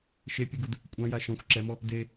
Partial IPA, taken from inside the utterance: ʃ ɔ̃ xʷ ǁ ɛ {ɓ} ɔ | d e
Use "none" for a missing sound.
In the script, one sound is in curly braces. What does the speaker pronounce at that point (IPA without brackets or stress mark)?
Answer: m